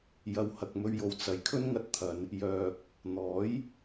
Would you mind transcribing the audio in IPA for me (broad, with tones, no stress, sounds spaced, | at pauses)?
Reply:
j ɐ˨˧ w h ɐ˨ k̚ m ɵ˧ ɥ j o˨ w t͡s ɐ˨˥ j kʰ ɵ˥ n ŋ ɐ˧ t̚ t̪ʰ ɐ˨˧ n | j œː˨ k̚ | n̪ ɔː˨˥ j